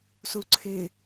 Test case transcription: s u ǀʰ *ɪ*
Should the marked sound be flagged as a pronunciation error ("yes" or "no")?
no